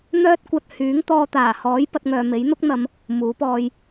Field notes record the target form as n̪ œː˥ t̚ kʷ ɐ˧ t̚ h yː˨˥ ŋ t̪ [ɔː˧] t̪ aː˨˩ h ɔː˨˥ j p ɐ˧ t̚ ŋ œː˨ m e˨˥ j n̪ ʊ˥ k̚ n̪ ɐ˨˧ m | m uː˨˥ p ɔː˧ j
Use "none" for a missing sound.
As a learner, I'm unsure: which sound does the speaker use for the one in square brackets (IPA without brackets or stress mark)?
ɔː˧